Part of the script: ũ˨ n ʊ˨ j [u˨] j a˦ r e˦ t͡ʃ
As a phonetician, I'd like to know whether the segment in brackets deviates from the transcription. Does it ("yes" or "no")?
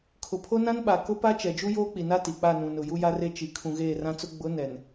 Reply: yes